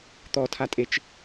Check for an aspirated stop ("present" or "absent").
present